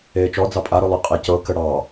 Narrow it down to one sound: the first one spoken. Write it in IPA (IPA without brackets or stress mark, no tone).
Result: eː